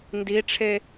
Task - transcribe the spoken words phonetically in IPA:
n d i ʈ͡ʂʰ e

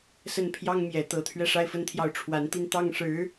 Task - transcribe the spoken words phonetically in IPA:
s ə˥˩ n pʰ j ɑ˥ ŋ m j ɛ˨˩ t̪ ɤ˧˥ t̪ʰ ɥ ɛ˥˧ ʂ a˥˧ ɪ̯ f ə˥˧ n t̪ʰ j ɑ˥˩ ʊ̯ ʈ͡ʂʰ w a˧˥ n t̪ i˥˧ n t̪ ɑ˥˩ ŋ ʂ ɻ̩˧˥

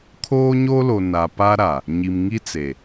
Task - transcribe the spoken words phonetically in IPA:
kʰ oː˦ ɲ o˦ l o˨ n a˨ p a˦ ɾ a˨ | ɲ i˨ m ŋ i˦ t͡s e˨

